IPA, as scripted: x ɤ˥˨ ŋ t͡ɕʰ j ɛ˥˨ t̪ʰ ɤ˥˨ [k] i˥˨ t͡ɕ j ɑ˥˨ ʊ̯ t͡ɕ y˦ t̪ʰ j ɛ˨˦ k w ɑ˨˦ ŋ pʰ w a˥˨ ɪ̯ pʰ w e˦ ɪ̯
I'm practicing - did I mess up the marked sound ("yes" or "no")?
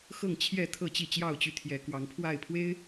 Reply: yes